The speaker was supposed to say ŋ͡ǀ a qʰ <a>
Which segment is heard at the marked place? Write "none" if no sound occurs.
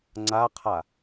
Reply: a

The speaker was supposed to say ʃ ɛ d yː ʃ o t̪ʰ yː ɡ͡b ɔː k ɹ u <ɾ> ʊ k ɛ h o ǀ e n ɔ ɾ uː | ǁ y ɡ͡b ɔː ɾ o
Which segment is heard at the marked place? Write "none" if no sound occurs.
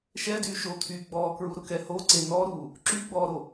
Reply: ɾ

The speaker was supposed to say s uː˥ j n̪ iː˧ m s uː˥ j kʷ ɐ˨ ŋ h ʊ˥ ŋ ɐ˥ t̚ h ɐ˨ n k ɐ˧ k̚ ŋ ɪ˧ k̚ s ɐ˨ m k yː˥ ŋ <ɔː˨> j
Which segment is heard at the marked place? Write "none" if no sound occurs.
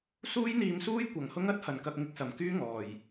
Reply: ɔː˨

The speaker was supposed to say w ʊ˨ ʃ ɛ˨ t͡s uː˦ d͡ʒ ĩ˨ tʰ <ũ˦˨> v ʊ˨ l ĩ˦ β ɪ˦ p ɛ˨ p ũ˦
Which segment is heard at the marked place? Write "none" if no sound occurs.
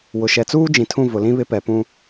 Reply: ũ˦˨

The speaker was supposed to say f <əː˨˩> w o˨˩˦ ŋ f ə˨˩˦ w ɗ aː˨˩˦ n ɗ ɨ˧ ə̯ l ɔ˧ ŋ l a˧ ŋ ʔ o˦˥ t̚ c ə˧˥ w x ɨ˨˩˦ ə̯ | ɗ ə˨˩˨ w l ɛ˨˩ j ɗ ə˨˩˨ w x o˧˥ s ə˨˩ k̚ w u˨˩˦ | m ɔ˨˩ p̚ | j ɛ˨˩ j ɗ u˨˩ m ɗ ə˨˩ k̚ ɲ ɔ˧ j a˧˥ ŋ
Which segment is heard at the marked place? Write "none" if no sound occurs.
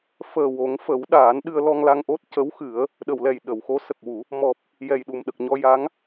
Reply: əː˨˩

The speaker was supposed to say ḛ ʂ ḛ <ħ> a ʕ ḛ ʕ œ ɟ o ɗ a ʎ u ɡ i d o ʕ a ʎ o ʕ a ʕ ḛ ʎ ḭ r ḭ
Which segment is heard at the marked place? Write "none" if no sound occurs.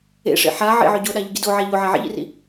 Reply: ħ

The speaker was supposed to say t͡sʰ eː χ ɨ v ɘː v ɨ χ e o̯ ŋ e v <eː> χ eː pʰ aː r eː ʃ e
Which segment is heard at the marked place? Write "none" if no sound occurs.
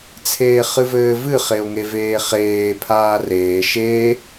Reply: eː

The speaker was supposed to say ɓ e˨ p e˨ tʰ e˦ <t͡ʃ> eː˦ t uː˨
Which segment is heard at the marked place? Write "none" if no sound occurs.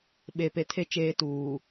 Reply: t͡ʃ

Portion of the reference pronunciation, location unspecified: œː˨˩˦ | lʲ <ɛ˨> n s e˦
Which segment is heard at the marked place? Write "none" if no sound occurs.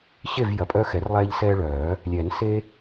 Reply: ɛ˨˩˦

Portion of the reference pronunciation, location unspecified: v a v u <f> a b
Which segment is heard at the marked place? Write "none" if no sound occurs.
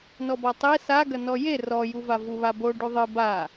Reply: β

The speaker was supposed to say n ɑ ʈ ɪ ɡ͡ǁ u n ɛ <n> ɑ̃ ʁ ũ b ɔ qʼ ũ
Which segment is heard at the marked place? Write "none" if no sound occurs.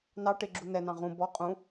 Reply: n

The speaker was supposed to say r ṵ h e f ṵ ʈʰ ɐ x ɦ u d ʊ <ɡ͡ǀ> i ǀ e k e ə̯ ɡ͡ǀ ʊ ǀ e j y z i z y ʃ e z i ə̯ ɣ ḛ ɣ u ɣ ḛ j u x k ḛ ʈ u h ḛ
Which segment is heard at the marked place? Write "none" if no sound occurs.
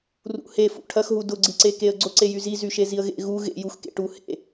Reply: ɡ͡ǀ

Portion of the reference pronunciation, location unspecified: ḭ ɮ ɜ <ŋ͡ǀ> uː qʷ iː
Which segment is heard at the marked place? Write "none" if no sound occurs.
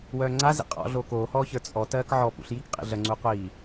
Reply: ŋ͡ǀ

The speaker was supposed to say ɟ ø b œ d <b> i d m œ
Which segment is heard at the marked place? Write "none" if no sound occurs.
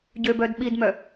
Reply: ɓ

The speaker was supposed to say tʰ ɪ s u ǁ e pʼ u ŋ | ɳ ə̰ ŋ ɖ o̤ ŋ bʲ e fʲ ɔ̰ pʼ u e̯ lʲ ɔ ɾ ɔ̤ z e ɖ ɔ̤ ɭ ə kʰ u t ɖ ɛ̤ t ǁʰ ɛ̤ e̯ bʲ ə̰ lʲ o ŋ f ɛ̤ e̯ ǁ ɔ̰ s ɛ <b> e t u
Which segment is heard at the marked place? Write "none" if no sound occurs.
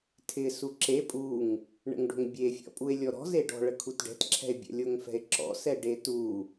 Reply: ɖ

